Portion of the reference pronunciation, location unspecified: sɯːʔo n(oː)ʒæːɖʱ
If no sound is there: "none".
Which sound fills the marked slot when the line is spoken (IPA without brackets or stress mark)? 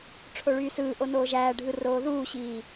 oː